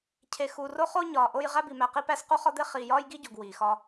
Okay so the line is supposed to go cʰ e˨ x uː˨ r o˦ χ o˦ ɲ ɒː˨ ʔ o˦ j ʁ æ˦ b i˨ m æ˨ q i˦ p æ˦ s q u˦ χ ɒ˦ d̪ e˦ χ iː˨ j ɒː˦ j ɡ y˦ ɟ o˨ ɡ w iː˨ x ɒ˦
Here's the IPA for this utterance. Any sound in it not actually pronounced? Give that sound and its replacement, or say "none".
y˦ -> i˦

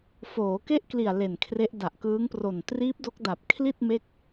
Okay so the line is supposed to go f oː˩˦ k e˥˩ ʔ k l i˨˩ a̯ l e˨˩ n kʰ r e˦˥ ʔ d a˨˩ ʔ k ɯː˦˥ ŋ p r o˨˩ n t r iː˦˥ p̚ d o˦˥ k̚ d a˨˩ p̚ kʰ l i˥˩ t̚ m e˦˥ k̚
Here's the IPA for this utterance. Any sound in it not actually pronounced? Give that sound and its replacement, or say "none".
none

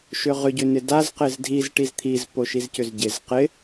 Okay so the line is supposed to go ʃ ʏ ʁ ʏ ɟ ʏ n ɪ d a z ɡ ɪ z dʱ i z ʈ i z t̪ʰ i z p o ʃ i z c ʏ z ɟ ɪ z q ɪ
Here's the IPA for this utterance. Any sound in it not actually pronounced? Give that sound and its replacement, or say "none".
ɡ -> q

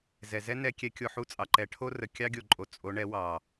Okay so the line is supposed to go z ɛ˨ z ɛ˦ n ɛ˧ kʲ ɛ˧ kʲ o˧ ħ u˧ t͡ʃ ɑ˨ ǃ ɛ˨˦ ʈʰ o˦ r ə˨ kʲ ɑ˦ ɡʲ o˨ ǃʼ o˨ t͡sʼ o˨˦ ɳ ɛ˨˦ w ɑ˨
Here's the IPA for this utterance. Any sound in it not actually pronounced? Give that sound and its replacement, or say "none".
t͡ʃ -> t͡sʼ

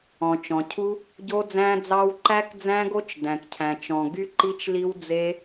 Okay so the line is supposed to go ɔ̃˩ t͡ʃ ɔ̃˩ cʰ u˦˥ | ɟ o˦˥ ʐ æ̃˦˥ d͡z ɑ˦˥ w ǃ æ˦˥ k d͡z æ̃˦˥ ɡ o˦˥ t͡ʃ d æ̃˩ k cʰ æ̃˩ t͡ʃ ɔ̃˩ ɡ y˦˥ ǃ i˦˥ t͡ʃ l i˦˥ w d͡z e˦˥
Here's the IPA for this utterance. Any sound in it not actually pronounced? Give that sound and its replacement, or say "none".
ʐ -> d͡z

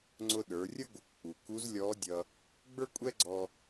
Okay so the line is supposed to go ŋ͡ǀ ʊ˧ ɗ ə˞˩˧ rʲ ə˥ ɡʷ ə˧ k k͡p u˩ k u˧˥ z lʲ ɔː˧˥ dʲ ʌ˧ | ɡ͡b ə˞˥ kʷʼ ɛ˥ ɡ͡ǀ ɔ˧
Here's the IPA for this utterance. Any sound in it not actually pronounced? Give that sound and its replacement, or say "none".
none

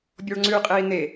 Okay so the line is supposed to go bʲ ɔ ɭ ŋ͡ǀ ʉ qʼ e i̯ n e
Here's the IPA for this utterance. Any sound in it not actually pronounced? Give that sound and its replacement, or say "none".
none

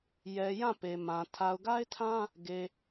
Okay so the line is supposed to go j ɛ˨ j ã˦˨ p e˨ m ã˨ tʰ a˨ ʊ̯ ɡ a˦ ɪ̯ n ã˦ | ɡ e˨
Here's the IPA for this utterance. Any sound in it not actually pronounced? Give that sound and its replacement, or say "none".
n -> tʰ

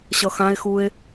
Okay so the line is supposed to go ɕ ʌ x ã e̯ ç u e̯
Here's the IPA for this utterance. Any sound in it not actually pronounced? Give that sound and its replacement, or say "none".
ç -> x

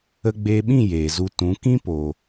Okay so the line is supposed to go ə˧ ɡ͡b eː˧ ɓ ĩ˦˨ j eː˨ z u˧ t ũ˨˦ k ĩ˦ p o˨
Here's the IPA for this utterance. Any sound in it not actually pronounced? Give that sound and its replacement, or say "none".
none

